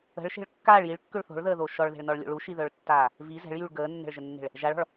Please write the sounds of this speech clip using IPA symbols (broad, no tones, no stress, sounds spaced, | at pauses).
ə̤ ɭ ʃ e̤ ɭ kː aː ɭ j i ɭ kː ø ɭ θ o̤ ɭ ð əː ð o ʃ ɔ ɭ ð e̤ ɭ n ɔ ɭ lʲ o̰ ɭ u ʃ i ð œ ɭ tː aː | v i z ɛ̤ ɭ j y ɭ ɡ əː nː ɛ̤ ɭ ʒ ə nː e̤ ɭ | ʒ a ɭ ɔ̤ ɭ